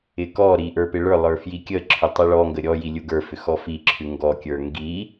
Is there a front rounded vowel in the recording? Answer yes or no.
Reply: yes